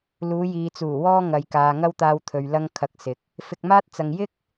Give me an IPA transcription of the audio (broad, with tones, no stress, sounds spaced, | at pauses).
l uː˨˧ j iː˨ t͡s uː˨˩ w ɔː˧ ŋ ɐ˨ j k aː˨ ŋ ɐ˧ w t̪ aː˨ w t̪ʰ ɵ˨ ɥ l ɐ˧ ŋ kʰ ɐ˨˥ k̚ s ɪ˨ k̚ | f ɪ˧ k̚ m aː˥ t̚ t͡s ɐ˧ ŋ j ɪ˥ k̚